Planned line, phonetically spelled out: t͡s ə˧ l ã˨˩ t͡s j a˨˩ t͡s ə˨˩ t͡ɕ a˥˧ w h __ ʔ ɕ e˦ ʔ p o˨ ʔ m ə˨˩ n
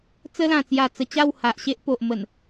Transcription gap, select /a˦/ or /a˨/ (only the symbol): a˨